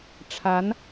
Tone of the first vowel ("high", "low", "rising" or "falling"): rising